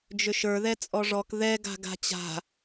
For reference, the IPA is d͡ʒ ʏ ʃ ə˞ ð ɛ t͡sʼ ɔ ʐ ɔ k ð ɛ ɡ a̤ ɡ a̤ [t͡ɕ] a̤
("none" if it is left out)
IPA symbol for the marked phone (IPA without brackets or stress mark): t͡ɕ